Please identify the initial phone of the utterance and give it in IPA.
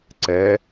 ǀ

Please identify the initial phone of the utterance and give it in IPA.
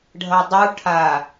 ɖʱ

